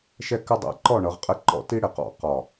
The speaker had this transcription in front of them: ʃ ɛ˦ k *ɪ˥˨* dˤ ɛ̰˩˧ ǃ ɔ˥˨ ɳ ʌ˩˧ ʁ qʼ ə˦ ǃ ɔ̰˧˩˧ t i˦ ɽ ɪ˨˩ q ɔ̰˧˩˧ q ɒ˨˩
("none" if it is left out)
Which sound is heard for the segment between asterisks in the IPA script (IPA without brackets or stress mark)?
ɪ˦